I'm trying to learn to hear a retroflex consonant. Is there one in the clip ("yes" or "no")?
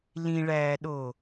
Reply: yes